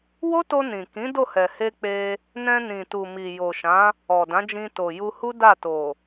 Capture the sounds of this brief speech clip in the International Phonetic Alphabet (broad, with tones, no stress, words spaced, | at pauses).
wo˦to˧nĩ˨kĩ˨˦ do˦˨hɛ˨he˧ k͡pe˧ | nɛ̃˧nĩ˨tu˨mi˨ jo˨ʃã˨˦ | ɔ˨dã˨˦d͡ʒĩ˧ to˨ju˧hu˦ da˦˨to˨